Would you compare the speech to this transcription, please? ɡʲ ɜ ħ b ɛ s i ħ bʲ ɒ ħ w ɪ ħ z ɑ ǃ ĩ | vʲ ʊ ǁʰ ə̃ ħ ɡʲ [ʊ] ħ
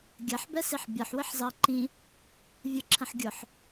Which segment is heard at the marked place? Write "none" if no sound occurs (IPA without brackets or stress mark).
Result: ʊ